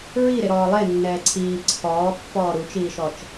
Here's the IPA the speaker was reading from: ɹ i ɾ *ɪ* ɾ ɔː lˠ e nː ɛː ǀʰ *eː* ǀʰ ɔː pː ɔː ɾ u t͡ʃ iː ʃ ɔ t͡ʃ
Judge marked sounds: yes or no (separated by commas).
yes, no